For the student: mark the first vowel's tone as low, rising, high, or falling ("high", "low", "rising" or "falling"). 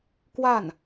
falling